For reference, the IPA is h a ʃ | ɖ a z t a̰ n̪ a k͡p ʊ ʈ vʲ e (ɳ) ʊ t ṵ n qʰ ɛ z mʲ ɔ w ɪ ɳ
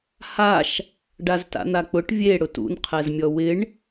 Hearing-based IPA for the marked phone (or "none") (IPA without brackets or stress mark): ɽ